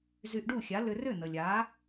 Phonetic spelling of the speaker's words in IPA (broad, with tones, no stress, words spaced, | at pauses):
zy˧ʔɖu˥˩xʲa˩˥ lʏ˧rʏ˥˩ nə˩lʲa˩˥